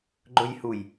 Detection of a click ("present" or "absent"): present